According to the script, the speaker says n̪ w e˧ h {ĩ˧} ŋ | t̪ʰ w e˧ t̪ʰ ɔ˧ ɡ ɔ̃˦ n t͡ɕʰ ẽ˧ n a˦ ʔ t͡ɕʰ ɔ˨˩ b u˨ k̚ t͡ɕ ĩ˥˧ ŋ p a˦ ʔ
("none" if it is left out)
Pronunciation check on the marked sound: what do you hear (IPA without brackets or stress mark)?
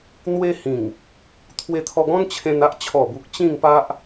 ĩ˨˩